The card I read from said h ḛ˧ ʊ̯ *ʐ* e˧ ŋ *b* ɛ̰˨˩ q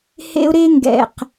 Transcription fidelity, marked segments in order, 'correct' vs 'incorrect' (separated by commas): incorrect, incorrect